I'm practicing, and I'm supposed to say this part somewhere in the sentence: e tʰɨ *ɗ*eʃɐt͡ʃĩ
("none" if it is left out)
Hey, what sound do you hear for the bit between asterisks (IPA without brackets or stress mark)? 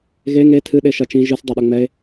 ɗ